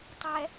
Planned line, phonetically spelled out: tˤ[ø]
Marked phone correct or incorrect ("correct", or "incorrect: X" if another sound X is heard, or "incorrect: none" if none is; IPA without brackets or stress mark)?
incorrect: ɛ